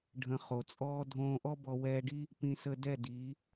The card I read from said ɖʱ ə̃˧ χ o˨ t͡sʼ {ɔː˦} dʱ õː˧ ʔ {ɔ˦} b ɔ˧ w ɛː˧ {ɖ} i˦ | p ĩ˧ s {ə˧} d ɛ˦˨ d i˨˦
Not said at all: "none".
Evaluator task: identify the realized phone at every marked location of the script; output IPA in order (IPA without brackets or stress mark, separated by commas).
ɔː˦, ɔ˦, ɖ, ə˧